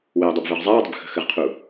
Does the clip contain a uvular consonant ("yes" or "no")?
yes